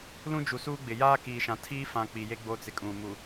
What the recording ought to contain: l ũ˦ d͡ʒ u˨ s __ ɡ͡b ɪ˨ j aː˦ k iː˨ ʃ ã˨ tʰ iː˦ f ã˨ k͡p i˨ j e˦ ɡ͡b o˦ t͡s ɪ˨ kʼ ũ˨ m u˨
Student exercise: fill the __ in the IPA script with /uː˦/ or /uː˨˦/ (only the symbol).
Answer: uː˦